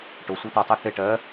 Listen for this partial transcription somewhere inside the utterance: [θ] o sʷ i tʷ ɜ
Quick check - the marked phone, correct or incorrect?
incorrect